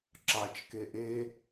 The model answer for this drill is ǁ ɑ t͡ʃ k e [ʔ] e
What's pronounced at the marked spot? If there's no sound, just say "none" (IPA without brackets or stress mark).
ʔ